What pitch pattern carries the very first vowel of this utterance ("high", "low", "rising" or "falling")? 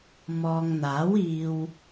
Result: low